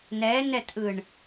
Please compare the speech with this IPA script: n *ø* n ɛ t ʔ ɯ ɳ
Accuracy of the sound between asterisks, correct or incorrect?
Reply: incorrect